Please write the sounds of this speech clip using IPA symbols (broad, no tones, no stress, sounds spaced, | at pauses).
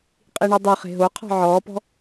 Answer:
qʼ i ɳ o dˤ ɵ χ e̤ ɦ o qʰ ɔ̤ ʕ ɔː p ɔ̤